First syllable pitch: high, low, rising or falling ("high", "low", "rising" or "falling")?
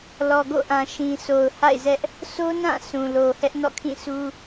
low